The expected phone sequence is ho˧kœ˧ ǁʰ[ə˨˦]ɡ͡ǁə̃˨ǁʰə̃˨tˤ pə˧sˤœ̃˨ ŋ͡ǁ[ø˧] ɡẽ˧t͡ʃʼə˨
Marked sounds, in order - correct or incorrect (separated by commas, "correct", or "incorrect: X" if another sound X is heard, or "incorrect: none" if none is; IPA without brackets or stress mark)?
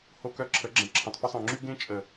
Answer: correct, incorrect: y˧